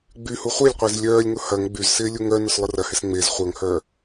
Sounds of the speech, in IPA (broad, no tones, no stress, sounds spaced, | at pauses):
ɡ͡b y h u χʷ e lʲ qʷ ɪː z lʲ œː lʲ ŋ ʊ h ɐ ŋ ɡ͡b y z s ɪː lʲ u ŋ œ n ʊ s lˠ ʊ r ɐ h ɪ s ŋ͡m e z χʷ œ ŋ h œː